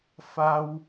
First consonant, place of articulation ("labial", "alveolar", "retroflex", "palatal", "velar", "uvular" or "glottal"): labial